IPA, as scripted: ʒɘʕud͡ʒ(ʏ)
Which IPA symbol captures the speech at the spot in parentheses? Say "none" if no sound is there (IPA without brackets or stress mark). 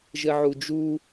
u